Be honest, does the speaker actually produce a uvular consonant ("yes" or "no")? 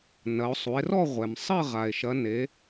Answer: yes